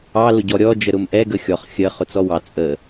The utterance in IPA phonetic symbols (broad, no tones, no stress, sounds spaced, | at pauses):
ɑ l ʊ ɟ ɔ ɾʲ ɔ d͡ʒ ə ɾ ʊ m ʔ ɛ ɡ ə xʲ ɔ χ xʲ ə χ ʊ t͡s ɔ w ɑ t͡sʼ ə